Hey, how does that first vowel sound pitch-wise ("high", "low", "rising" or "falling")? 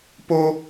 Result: high